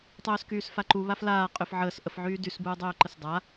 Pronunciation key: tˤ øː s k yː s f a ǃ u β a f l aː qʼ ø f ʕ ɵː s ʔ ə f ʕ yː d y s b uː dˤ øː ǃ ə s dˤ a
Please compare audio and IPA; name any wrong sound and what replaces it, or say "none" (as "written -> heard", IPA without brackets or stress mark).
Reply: ɵː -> əː